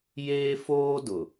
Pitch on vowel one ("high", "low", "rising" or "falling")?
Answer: high